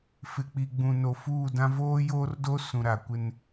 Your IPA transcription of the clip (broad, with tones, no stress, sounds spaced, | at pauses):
f ɪ˨ k͡p i˨ ɡ͡b ũ˨ n o˨ f uː˦˨ d ã˦ v oː˦ j oː˦ r d o˦ s ũ˨ ɾ a˨ kʷ ɪ˦ n